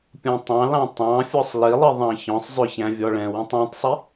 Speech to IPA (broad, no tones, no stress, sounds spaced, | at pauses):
pʲ ɔ̃ tˤ ɑ̃ l ɑ̃ tˤ ɑ̃ fʲ ɔ sˤ l i lˠ i ðˤ ɑ̃ ç ɔ̃ sˤ zˤ ʏ ç æ̃ vʲ ɔ ɭ ɛ̃ w ɛ̃ tˤ ɑ̃ tˤ sˤ i